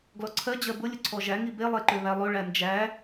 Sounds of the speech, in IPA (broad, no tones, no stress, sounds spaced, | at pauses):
ɡ l ɔ ǀʰ ɜ d͡ʑ ɜ b ʊ lʲ ʊ ǀʰ ɔ ʒ æ ŋ i b e lˠ e ǃ ø β æ lˠ ø ɭ æ n d͡ʒ æ